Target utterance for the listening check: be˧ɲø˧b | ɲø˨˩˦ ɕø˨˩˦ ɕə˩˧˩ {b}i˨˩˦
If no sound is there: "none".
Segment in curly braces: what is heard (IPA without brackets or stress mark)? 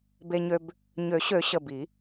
b